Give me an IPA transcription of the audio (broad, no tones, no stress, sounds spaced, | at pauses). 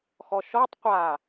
x ɔ ʃ ɔ tˤ qʷ a